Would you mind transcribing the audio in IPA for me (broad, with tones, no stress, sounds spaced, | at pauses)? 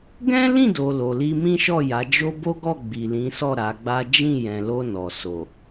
ɡ ɛ̃˦ l ĩ˦˨ d o˨ l o˨ l i˧ m ĩ˦ ʃ ɔ˦˨ j a˨˦ d͡ʒ o˦ b o˦ ɡ ɔ˦˨ ɡ͡b i˨ l ĩ˨˦ s ɔ˦˨ ɾ a˨˦ ɡ͡b a˦ d͡ʒ ĩ˦˨ j ɛ̃˨ l o˧ n ɔ˨ s o˨